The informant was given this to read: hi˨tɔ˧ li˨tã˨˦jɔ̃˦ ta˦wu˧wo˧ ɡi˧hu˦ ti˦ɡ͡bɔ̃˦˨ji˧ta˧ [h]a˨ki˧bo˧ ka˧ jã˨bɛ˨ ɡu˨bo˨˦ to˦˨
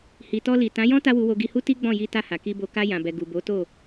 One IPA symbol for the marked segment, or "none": h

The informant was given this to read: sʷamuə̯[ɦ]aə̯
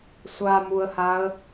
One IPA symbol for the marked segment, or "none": h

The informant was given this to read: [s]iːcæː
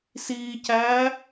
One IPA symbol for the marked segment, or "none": s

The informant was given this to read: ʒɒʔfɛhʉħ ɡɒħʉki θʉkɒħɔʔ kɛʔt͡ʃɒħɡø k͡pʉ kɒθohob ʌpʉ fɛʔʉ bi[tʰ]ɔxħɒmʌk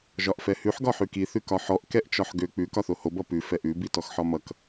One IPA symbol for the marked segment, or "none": t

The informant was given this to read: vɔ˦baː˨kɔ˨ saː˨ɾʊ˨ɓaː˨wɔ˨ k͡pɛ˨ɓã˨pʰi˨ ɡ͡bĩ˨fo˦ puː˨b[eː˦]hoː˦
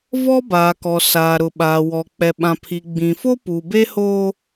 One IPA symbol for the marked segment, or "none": e˦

